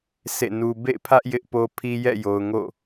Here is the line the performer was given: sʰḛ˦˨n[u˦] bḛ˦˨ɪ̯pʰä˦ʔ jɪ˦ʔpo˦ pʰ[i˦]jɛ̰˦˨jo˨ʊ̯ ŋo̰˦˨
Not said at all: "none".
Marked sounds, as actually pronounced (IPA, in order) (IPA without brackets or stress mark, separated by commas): u˦, i˦